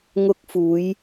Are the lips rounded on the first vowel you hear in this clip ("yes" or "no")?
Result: yes